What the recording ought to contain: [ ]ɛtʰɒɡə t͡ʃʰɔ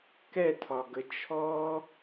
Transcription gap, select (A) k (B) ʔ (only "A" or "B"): A